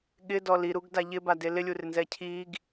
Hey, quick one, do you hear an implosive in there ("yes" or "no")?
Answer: yes